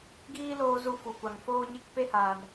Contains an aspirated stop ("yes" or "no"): no